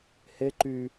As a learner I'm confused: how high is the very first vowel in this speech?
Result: mid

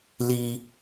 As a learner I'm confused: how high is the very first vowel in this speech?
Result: high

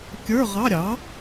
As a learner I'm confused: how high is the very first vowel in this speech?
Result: mid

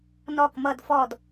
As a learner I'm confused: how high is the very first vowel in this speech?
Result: mid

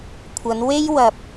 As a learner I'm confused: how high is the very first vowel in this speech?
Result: low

